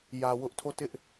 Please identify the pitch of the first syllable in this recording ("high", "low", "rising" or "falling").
low